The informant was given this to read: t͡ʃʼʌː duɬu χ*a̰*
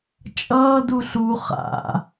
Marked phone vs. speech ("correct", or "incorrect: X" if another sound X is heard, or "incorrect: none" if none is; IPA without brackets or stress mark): correct